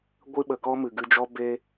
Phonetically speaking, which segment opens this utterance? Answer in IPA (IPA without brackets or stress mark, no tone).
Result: ɡʷ